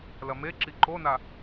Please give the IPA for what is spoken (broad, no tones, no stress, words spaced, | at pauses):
lɐmeǁi ǃona